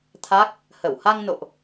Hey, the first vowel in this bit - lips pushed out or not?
no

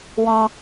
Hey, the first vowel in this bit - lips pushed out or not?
yes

